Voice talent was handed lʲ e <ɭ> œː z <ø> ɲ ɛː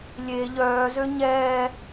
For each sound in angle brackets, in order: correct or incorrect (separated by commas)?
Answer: incorrect, correct